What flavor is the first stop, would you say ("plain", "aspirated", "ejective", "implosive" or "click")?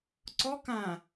click